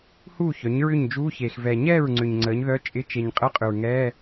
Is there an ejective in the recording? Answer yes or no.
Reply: yes